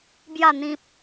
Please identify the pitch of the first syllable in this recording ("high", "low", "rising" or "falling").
falling